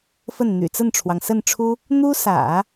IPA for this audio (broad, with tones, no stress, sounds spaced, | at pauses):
f ə˥˩ n n̪ y̰˨˩ t͡s ə˥˩ n ʈ͡ʂʰ w ɑ˩ ŋ s ə˥˩ n ʈ͡ʂʰ u˥ | n̪ u˥ s ä̰˨˩˦